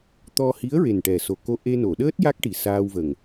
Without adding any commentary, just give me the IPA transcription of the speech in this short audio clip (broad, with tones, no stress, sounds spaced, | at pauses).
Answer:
t̪ ɔ˧ h i˧˥ ə̯ ɹ e˨˩ n ʈ ɛ˨˩ s o˨˩ k o˧ ʔ e˧ n o˨˩˨ ɗ əː˦˥ t̚ j a˦˥ k̚ ʈ i˨˩ s aː˧ w v ə˨˩ ŋ